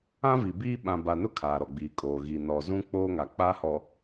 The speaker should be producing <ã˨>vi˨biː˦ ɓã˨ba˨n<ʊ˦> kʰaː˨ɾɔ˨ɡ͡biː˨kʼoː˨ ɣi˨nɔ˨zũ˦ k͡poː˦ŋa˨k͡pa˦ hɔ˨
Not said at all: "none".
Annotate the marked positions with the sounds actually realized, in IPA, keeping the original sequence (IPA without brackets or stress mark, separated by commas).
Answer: ã˦, ʊ˦